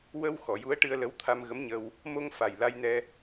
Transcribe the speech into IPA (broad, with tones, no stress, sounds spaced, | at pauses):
w ə˧ w x ɔ˨˩˨ j u˧˥ ə̯ ʈ ɨ˧ ə̯ l ə˧˥ w t̪ʰ a˧ m ɣ ə˧˥ m ɲ ə˧ w | m o˧ ŋ f a˨˩ j l a˧ j n ɛ˧